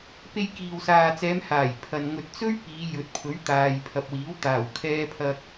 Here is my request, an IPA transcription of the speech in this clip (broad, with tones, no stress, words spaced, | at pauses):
pe˧jkiː˨wsaː˨t͡sɛː˨˧m haː˨˩jpʰɐ˨n ŋɵ˨t̚t͡sɵ˥ɥ piː˨˧jɵ˨t̚pʰɵ˨˥ɥ t̪aː˨jpʰɐ˨p̚wiː˨˥wt̪aː˨˩w kʰɛː˧pʰɐ˧k̚